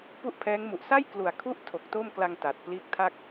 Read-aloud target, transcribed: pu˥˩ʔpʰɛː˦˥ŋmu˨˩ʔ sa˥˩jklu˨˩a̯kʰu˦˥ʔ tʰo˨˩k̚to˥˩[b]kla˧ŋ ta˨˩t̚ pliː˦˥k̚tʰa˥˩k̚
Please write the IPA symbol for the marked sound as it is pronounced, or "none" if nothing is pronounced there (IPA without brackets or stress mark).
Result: m